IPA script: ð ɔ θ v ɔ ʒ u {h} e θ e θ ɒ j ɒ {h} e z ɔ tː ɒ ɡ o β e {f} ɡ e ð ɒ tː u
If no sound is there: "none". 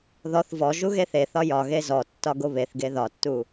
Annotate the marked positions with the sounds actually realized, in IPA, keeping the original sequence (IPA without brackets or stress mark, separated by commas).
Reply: ɣ, ɣ, θ